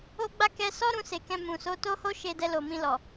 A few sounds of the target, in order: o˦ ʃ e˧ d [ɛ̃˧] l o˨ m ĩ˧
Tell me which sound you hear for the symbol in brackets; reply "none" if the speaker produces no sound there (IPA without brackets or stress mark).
ɛ˧